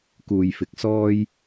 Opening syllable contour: low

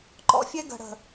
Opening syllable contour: high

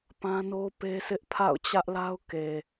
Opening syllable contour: high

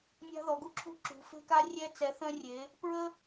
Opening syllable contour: high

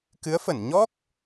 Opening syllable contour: rising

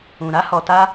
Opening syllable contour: low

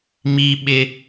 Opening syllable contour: high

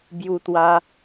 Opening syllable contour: high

